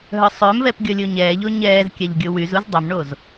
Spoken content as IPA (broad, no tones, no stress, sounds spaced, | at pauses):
ɦ œ sˤ ø m v ɛ p ɡʲ ɔ lʲ o ɲ ɛː ʎ o ɲ ɛː z kʲ a ʎ ɡʲ o w y z u z dˤ ø m ɳ o z